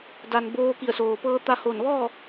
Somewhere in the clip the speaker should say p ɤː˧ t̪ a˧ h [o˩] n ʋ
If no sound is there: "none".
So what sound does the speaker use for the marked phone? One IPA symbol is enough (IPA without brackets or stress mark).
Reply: o˧˩